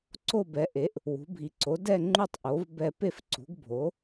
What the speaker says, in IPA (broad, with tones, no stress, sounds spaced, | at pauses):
ǀ o˦˨ b ɛ˩˥ ʔ e˩˥ ʔ | w ṳ˩˥ bʱ i˩˥ ǀ o˩˥ d ɛ˦˨ ŋ͡ǃ u˦˨ tˤ ʔ o˩˥ v b ɛ˦˨ p e˦˨ f ǀ ṳ˩˥ ɡ bʱ o˩˥